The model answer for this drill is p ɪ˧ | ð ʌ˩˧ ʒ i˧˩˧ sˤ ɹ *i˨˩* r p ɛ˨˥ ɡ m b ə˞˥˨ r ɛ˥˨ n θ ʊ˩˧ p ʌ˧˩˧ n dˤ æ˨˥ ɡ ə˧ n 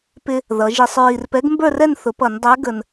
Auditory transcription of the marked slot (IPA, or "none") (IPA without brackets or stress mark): i˨˩